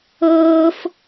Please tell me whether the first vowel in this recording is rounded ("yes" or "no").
no